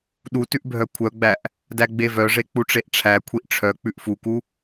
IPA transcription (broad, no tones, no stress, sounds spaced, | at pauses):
ɗ u t ʉ ʔ bʱ œ kʷʰ œ ɡ͡b æ ʔ | d æ ɡ͡b e v œ ʐ e k͡p u ʈ͡ʂ e ʔ ʈ͡ʂʰ æ kʷʰ i ʔ ʈ͡ʂʰ œ k͡p ʉ ʔ f u k u